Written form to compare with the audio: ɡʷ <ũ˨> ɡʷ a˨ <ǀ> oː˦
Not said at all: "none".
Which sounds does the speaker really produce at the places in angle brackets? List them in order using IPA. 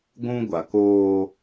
ũ˦, k

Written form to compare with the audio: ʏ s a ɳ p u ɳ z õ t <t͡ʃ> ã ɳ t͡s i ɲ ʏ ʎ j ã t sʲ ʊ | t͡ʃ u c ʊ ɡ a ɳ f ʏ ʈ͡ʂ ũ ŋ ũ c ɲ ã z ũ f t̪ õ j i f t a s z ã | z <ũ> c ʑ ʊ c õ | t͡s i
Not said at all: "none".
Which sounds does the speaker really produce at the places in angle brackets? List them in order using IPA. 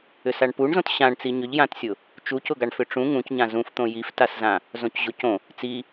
ɕ, õ

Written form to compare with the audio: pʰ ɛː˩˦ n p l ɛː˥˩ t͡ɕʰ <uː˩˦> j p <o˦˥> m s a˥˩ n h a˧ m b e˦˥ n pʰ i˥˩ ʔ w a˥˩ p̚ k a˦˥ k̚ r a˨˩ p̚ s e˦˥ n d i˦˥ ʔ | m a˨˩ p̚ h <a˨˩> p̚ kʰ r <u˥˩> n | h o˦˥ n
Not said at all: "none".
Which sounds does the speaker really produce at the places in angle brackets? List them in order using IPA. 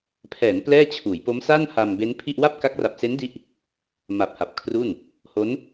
uː˩˦, o˦˥, a˨˩, u˥˩

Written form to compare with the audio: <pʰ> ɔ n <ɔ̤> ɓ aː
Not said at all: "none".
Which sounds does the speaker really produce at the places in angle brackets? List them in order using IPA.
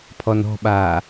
pʰ, ɔ̤

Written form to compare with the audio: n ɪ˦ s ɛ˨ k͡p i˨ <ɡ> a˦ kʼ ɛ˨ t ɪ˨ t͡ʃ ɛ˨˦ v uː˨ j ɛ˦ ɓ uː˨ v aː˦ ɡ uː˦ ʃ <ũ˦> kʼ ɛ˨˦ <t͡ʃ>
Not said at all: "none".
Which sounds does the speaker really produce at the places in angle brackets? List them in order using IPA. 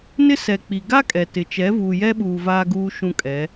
ɡ, ũ˦, none

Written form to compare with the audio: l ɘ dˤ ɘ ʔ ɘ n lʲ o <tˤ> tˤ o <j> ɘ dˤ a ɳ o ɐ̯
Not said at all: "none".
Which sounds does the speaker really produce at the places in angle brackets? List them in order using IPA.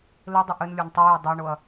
n, j

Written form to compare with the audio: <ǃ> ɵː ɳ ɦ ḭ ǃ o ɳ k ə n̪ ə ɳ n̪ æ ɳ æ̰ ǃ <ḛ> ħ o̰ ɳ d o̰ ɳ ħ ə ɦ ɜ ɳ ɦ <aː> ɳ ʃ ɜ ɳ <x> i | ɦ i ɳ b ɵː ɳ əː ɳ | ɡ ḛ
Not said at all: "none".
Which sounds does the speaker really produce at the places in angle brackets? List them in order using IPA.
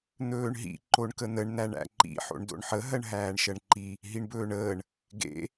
n̪, ḭ, æː, ǃ

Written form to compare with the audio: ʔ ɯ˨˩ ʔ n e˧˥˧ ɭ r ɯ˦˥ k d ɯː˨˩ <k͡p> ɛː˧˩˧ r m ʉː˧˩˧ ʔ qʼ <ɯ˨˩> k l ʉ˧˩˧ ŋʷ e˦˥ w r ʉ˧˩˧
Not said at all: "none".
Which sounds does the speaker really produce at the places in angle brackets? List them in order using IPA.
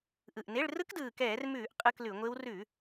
k, ɯ˧˥˧

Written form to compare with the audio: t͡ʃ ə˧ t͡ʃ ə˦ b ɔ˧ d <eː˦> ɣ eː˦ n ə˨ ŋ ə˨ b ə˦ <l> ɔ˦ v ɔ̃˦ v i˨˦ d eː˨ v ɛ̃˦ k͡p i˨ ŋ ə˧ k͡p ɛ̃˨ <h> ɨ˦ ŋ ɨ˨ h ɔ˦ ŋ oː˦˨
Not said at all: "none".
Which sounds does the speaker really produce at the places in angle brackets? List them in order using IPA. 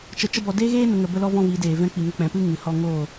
eː˦, l, p

